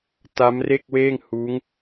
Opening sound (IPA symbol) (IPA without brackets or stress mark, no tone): t